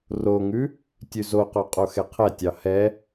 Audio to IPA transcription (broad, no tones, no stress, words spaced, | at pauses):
roŋʉ | tʲʉzoqo qʼoxɛqʰɛtʲɑ hɛ